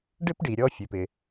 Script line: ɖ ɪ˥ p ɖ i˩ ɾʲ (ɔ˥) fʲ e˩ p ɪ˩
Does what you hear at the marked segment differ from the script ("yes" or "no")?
yes